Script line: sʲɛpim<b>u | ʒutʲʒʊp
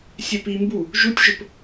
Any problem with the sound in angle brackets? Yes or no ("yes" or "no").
no